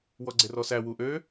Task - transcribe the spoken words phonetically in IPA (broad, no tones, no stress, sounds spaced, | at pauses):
w ɔ ɡ͡ǀ e r ɔ s æ w u ʔ ø